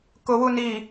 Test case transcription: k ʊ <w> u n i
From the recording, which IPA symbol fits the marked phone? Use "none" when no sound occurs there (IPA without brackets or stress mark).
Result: w